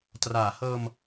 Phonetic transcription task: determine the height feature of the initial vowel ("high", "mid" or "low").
low